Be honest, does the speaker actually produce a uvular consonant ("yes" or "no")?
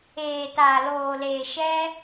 no